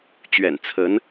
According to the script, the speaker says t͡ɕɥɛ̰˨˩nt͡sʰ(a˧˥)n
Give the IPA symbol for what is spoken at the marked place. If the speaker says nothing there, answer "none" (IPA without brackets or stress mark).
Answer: ə˧˥